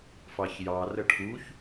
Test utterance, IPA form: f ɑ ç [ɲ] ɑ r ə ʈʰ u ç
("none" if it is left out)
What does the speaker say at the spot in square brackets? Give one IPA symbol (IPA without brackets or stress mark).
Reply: j